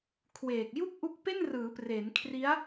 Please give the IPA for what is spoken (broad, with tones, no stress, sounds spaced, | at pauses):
kʰ w eː˨˩ k̚ j u˥˩ k̚ ʔ u˦˥ k̚ p e˥˩ n r ɯː˩˦ p r e˩˦ n kʰ r i˦˥ a̯